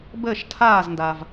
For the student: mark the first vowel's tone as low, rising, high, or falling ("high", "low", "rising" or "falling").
falling